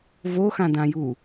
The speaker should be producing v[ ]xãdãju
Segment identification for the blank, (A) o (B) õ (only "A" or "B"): A